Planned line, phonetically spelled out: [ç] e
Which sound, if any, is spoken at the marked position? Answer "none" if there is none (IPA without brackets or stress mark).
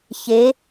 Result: ç